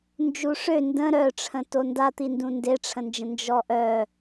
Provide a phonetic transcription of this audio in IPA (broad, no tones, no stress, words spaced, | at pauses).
nd͡ʒuʂø ndə̃ ɾœʈ͡ʂʰə̃ tondat̪indũ ndeʈ͡ʂʰə̃nd͡ʒə̃ nd͡ʒɔʔœ